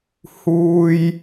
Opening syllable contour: high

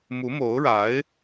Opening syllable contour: rising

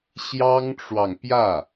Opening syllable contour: high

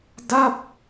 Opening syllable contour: falling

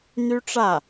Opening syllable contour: high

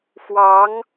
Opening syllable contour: rising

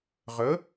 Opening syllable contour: rising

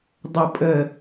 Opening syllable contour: low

